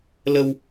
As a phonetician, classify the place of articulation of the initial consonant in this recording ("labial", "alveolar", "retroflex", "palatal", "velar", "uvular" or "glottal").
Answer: alveolar